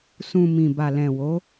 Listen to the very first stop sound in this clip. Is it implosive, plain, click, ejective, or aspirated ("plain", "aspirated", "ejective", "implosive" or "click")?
plain